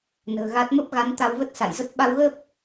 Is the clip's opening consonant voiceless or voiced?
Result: voiced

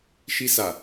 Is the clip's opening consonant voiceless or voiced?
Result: voiceless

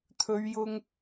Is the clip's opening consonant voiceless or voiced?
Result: voiceless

